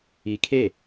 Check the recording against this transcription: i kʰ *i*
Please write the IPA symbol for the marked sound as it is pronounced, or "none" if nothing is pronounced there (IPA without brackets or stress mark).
e